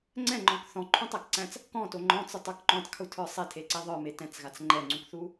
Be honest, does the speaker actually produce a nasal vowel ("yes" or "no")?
yes